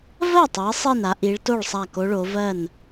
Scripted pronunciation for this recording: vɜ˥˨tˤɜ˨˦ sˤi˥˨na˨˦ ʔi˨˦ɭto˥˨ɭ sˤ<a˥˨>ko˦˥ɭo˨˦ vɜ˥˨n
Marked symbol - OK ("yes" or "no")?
yes